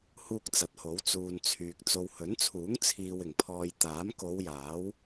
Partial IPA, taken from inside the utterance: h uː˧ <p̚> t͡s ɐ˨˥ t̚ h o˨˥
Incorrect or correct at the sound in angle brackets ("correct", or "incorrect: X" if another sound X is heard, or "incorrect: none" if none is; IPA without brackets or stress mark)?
incorrect: k̚